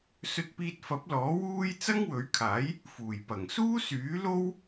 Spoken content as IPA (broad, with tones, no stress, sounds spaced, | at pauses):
s ɵ˧ t̚ p iː˧ t̚ f ɐ˨˥ p̚ l ɔː˨˥ w uː˥ j t͡s ɐ˥ ŋ w ɵ˨˥ ɥ kʰ aː˨˥ j | f uː˨˩ j p ɐ˨˩ ŋ s uː˥ s yː˨˥ l o˥ w